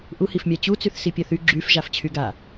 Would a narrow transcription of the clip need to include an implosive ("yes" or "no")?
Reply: no